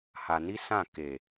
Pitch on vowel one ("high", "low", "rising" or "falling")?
low